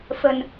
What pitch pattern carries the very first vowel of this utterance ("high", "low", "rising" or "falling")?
low